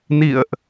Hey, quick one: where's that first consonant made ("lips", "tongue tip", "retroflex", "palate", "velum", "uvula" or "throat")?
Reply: tongue tip